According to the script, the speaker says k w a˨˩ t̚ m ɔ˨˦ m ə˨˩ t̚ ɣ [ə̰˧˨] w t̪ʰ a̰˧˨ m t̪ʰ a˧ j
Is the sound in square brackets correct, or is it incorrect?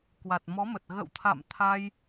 correct